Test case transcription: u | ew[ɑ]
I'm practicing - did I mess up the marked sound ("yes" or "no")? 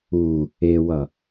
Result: yes